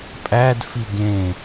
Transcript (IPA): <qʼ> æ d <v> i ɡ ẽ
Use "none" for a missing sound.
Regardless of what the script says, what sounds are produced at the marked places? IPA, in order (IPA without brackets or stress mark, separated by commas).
pʼ, f